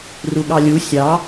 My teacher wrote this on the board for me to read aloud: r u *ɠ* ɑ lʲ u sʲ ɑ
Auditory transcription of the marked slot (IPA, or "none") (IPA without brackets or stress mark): ɠ